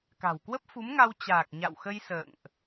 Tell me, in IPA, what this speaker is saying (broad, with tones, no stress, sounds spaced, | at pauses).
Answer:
k a̤˨˩ w k w ə˦˥ p̚ f u˨˦ m ŋ a˧ w t͡ɕ aː˨˩ k̚ ɲ a̰˧˨ w x ə˧ j s ə̰ː˧˨ ŋ ʔ